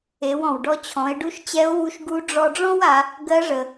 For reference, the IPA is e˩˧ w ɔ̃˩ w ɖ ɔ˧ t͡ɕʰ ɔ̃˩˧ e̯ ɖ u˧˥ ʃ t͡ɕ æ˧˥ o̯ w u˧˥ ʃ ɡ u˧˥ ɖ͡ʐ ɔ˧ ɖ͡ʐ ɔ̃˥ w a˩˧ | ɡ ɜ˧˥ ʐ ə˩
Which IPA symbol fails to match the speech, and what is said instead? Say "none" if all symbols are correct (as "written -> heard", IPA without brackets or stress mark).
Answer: æ˧˥ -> ɛ˧˥